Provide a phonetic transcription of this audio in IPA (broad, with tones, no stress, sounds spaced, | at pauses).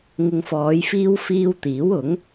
ŋ ɪ˨ ŋ f ɔː˨˧ j f iː˧ w f iː˧ w t̪ iː˨˥ w ʊ˨˥ ŋ